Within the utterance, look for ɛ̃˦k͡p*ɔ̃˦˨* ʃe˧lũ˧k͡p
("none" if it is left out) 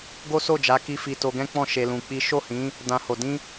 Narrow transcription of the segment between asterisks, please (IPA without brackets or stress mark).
ɔ̃˦˨